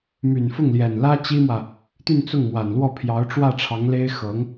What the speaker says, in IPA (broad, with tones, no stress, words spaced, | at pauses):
my˨˩nfʊ˥˩ŋljɛ˨˩n lä˥t͡ɕi˥mwä˨ | t̪y˥˧nt͡sʊ˥˩ŋmwa˨˩nlwɔ˥˩ pʰjɑ˧˥ʊ̯ʈ͡ʂwä˥˩ʈ͡ʂʰɑ˧˥ŋle˥ɪ̯ xɤ˧˥ŋ